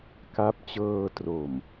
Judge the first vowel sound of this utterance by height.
low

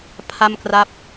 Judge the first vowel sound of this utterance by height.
low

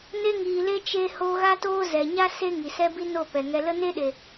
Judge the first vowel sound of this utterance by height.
mid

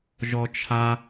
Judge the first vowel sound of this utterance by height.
mid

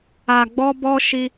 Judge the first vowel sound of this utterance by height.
low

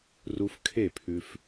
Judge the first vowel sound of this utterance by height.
high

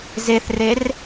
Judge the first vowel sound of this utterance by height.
mid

